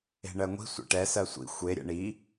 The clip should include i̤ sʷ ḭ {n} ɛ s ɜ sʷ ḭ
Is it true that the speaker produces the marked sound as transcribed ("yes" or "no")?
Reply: no